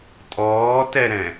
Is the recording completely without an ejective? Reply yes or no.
no